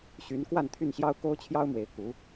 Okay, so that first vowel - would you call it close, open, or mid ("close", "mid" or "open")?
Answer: close